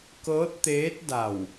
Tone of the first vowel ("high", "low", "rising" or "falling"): rising